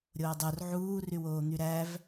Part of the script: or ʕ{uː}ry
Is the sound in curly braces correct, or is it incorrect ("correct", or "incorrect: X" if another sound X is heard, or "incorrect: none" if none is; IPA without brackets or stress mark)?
correct